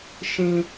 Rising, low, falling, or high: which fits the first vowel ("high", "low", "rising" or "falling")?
high